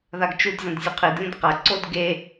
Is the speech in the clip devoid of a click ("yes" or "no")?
no